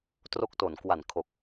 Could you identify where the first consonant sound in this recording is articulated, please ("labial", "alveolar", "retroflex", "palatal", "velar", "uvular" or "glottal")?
alveolar